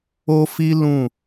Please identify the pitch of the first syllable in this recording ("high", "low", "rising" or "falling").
high